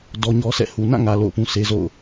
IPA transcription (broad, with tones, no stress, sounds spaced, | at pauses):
d ɔ˦ ɲ ɔ˦ sʰ ɛ̰˦˨ h u˨ n ã˦˨ ŋ ä˨ l o̰˦˨ ʊ̯ p ũ˦ s e˦ z o̰˦˨ ʊ̯